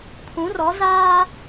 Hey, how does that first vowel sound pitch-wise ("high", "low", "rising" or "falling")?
rising